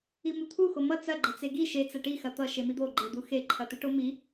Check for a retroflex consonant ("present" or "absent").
present